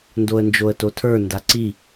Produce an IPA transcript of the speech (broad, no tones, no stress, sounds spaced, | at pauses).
n d o ə̯ n d͡ʒ o ə̯ t o tʰ ə˞ n d a ǀ i